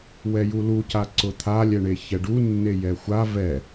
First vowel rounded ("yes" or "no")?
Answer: no